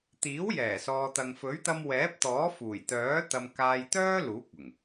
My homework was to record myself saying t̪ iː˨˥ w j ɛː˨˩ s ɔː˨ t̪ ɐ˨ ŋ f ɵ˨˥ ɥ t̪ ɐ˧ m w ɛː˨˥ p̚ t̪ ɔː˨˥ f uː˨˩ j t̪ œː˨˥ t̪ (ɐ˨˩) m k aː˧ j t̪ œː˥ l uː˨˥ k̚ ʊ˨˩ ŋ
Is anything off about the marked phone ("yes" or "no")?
yes